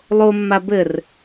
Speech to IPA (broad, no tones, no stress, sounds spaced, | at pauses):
lˠ o mː a b ɘ r